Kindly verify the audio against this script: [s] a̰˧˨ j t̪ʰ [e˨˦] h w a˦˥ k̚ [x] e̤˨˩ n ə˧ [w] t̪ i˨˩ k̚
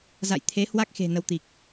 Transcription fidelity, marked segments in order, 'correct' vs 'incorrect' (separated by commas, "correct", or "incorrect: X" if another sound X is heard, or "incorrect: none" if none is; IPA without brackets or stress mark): incorrect: z, correct, correct, correct